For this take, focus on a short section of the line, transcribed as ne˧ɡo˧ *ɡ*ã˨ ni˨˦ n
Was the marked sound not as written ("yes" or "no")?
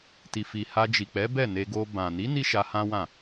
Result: yes